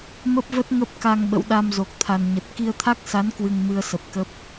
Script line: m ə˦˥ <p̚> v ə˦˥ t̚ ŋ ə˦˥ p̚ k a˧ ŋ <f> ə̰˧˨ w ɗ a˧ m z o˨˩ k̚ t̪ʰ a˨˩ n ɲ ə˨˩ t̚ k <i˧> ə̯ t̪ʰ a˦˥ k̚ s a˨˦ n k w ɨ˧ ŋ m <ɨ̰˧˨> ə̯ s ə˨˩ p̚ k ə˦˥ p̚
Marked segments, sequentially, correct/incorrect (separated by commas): correct, incorrect, correct, incorrect